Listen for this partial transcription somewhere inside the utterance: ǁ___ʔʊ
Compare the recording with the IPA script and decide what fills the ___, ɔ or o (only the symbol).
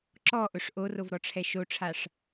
ɔ